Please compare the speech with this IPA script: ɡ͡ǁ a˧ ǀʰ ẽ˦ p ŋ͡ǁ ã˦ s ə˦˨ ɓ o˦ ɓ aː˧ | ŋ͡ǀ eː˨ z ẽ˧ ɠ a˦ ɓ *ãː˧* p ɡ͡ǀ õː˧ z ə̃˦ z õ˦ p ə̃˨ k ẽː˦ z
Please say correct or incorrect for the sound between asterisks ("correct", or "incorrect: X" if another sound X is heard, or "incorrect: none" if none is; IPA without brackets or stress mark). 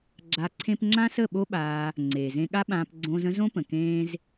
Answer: correct